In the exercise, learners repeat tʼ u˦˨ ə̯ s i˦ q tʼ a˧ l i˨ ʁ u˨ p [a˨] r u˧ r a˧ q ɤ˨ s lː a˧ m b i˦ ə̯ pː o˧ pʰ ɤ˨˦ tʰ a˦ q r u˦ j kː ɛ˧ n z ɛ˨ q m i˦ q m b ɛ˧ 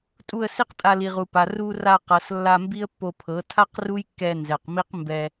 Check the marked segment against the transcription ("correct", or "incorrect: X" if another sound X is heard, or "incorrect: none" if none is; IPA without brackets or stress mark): correct